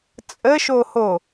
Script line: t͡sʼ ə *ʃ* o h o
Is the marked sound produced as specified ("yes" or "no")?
yes